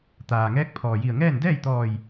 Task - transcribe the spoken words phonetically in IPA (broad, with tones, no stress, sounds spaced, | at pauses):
t̪ aː˩ ŋ ɛː˧˥ k̚ pʰ ɔː˩ j i˧˩ ə̯ ŋ ɛː˥˨ n d ɛː˥˨ j t̪ ɔː˧˩ j